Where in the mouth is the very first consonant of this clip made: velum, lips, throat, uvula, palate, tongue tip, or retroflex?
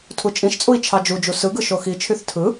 tongue tip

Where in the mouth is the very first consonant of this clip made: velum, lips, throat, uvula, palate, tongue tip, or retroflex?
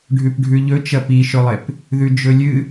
retroflex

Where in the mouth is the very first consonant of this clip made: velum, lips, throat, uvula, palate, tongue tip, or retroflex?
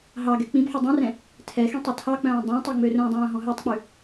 throat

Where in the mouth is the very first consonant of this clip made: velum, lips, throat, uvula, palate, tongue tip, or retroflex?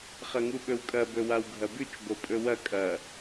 uvula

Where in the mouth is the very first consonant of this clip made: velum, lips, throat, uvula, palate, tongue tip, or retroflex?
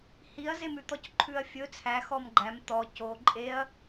throat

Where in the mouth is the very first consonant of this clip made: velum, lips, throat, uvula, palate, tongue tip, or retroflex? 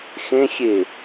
velum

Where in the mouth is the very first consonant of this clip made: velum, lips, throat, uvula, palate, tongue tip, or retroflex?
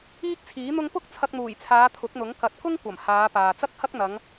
velum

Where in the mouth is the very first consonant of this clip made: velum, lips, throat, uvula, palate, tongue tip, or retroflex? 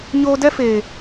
palate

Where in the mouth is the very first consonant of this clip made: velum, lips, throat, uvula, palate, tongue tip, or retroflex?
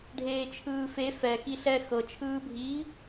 retroflex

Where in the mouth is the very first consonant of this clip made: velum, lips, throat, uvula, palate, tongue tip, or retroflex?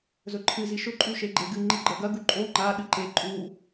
tongue tip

